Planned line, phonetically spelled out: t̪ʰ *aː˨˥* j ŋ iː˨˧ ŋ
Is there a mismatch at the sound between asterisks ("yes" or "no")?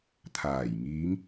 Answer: yes